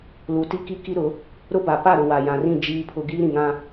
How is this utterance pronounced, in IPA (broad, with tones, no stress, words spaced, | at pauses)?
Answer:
lu˨ti˦ki˦ ki˦ɾʊ˨˦ | ɾʊ˦ba˨ pa˦˨ɾʊ˨wa˨ jã˨rĩ˦˨ d͡ʒiː˦pʰʊ˦ ɡiː˦ɾĩ˨ŋã˦